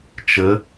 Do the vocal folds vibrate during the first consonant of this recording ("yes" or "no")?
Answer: no